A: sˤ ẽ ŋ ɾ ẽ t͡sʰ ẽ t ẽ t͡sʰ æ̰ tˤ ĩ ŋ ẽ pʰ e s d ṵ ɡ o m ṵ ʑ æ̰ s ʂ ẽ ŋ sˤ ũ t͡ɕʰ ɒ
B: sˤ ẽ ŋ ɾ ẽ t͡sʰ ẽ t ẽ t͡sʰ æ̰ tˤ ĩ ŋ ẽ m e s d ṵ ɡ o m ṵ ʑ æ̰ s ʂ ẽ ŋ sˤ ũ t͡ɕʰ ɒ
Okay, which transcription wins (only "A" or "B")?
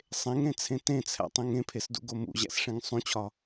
A